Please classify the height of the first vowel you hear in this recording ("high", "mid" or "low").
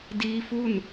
high